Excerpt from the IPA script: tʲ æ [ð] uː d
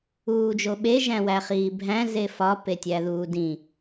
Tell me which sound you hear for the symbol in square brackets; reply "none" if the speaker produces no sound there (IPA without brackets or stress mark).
ð